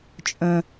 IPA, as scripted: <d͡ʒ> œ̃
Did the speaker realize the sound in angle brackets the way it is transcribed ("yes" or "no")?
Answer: no